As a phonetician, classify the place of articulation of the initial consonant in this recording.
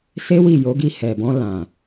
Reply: alveolar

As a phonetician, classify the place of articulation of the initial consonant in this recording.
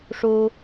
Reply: retroflex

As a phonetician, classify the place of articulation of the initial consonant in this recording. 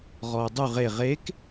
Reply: uvular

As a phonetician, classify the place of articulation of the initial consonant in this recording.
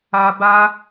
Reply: labial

